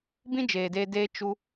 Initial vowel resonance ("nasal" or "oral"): nasal